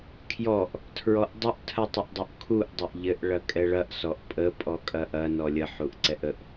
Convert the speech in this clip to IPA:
kʰjɔʔ | tʰɹɔʔdˤʊʔ tʰɐtˤəʔdˤʊʔkʰuʔ dˤɐʔʎɘʔ ɭɐkʼɛɭɐʔ sɔʔpʼə pʼɔkʼɐʔɐ nɔlʲə ħuʔǀɛʔəʔ

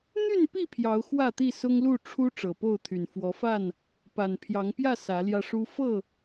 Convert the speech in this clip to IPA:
n̪y˥˨npi˥˨ pʰjɑ˨˦ʊ̯xwä˥˨t̪i˥˨ sʊ˦ŋlu˥˨ ʈ͡ʂʰu˦ ʈ͡ʂɤ˨˩po˥˨ʊ̯t̪ʰy˨˩n fwɔ˨˦fa˥˨n | pa˨˩npʰjɑ˨˦ŋpjä˥˨ sä˨˦ljä˧ʂu˦ fɤ˥˨

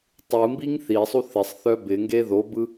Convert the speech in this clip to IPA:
tˤɯmbiŋ θisˤu θɪsˤ θœbɪŋɡe ðobɯ

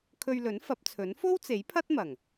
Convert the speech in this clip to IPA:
kʰɵ˧ɥlɵ˨˥n fɐ˨˥p̚t͡sʰɵ˨˥n fo˥wt͡se˨˥j pʰɐ˥t̚mɐ˨˩ŋ

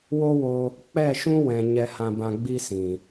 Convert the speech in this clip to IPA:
wo˦wo˧ | k͡pɛ˦˨ʃũ˦wɛ̃˨ ɲɛ˧hã˧bã˧ɡ͡bi˦ sĩ˨

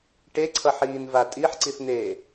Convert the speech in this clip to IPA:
ʈeǀʰʌħiːnva tʼiħǀiθn̪eː

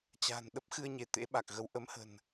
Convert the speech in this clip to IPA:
t͡ɕa̤˨˩n ɗə˦˥p̚xɨ˧ə̯ɲe˧˩ t̪ḛ˧˥ɓa˨˩k̚ɣə˨˦w ʔə˨˦mhə̤˨˩n

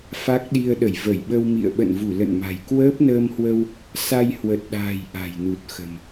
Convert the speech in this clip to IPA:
fa˦˥k̚ɗi˧ə̯ ɗə˧˩jvə˧˩j ɓə˧wmḭ˧˨ə̯ ɓə̰˧˨nvu˧˩ lə̰˧˨nma̤˨˩j kwəː˦˥p̚nəː˧mhwə˧w | sa˧j hwə˨˩t̚ɗa̤ː˨˩j ʔa̤˨˩jnu˨˩t̚xə̤˨˩m

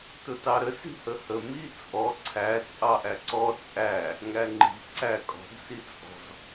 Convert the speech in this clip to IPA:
tʊtɑɾə si̤həhə mit͡sʼɔ ǀʰæ t͡sʼɑʔæǀɔ t͡sʼæ | ŋæŋ͡ǃi̤ ǀækʼɔ̤ɡ sit͡sʼɔ̤z

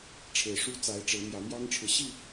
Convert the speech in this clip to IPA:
ʈ͡ʂʰe˨˩ɪ̯ʂu˦t͡sa˨˦ɪ̯ ʈ͡ʂe˨˦ɪ̯ mjä˨˦mjɑ˦ŋʈ͡ʂʰɻ̩˨ ɕi˥˨

